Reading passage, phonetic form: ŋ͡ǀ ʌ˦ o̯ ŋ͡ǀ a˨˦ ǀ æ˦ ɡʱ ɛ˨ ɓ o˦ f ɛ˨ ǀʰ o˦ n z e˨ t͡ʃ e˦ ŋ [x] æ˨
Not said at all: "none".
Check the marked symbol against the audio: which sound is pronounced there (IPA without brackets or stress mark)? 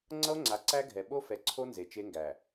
ɡ